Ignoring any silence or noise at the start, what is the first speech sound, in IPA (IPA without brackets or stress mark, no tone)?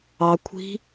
ɑ